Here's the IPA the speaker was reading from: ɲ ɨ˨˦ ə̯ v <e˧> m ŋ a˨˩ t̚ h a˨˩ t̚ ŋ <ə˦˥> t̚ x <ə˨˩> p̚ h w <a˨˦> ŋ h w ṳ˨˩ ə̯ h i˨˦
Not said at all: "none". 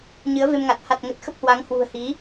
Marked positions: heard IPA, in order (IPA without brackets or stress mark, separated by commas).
e˧, ə˨˩, ə˦˥, a˨˦